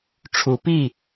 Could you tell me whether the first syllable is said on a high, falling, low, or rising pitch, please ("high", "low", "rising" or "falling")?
rising